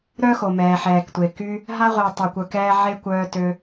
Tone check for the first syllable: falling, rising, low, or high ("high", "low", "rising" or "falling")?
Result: high